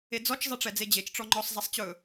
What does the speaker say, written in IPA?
ed͡zɔt͡ʃ zˤɛʈ͡ʂɛd͡zed͡ʑet͡ʃ ʈ͡ʂɔŋ͡ǃɔsˤ zˤɛsˤt͡ɕɵ

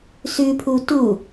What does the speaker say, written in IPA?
sʉpʰu tu

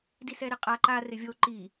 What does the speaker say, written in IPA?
disɛɾɪqʼa ǃa rɪvʲo ǃi

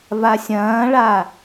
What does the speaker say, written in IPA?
vasʲɐ̃ːɭa

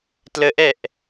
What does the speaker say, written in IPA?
tləʔɛʔ

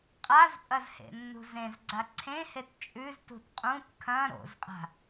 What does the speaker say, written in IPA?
qʼazpʼɐz hḛnːṳzẽzɡ͡ǀa ǀʰẽhet t͡ʃʼʉztṳt qʼũt kʰɐ̃ ɾo̰zqʼa̤

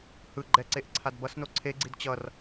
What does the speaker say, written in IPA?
hɯ ɡ͡ǃɛǀeʔ ǀʰadbʌsno ǀʰeɡ͡ǀid t͡ɕʌr

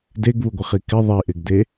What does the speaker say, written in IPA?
deɡβuɡʷɪχi kɪ ðˤiʔɪɡde

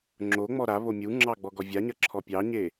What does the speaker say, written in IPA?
ŋ͡ǁoŋ͡mɔ ɾa βomʲuŋ͡ǁɑ ɡ͡bɔɡɔvʲaɲɐ ǁʰɔpʲɑɲe

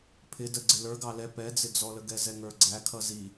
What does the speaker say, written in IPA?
pʰɪ də ɡ͡ǀɪlə˞ ɡɑlɛ pɛd͡zɪd͡zɔlə ɡɛzɛŋə˞ɡ͡ǀæ kʰʌzi

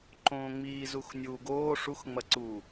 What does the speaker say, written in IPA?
ǃõːŋ͡miːzux nʲuːɡoː ʂuxŋ͡mɐǀuː

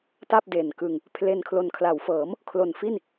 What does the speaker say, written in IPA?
ta˥˩p̚de˨˩nkɯ˧ŋ | pʰle˧nkʰlo˨˩n kʰla˩˦wfɤː˩˦m | kʰlo˨˩nfi˥˩n

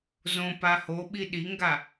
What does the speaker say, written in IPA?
zõpa hoɓi ɗiŋɡa

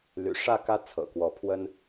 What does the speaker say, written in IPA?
ly̰˨˩ʂä˥˨kä˦ t͡sʰɤ̰˨˩kwɔ˨˦pʰwə˦n

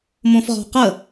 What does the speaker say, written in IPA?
mõfʁɔ̤qə

